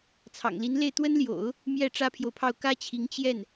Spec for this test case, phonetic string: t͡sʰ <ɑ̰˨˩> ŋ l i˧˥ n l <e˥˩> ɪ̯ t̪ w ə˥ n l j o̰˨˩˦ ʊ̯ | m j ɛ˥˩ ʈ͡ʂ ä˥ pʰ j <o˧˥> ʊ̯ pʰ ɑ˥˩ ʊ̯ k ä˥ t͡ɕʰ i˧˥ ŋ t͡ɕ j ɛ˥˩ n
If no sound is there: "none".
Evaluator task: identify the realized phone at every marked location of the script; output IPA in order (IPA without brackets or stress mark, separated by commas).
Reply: ɑ̰˨˩, e˥˩, o˨